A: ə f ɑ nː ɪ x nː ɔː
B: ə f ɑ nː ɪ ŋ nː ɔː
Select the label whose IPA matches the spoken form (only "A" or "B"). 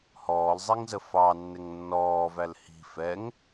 B